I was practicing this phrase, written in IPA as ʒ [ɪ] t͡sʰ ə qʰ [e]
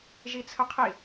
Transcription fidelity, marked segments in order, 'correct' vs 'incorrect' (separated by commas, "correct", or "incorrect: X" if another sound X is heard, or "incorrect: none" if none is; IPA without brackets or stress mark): incorrect: i, incorrect: i